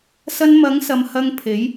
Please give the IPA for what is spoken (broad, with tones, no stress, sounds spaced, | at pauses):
s ɐ˧ n m ɐ˨˥ ŋ s ɐ˨ m h ɐ˧ ŋ pʰ e˨˥ j